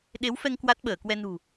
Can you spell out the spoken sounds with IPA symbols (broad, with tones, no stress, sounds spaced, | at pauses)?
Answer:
ɗ e˨˦ w f ɛ˧ ŋ k w a˦˥ t̚ ɓ əː˧˩ k w ɛ˧ n ṳ˨˩